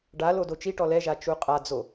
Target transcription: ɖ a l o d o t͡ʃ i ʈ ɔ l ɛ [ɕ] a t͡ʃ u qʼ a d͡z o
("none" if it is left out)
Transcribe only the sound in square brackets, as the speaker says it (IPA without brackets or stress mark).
ʒ